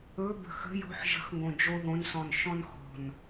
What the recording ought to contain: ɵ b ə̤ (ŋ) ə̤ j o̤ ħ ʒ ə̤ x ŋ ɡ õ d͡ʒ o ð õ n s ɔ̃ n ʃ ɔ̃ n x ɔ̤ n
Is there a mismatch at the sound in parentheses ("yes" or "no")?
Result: yes